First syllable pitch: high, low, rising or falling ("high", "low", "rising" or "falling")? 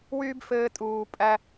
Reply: high